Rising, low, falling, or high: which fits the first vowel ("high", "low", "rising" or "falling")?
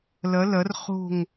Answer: rising